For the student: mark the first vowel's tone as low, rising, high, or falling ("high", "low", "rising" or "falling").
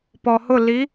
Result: low